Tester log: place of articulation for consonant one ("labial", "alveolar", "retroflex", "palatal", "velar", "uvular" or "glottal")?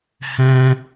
glottal